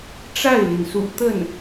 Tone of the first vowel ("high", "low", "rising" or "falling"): falling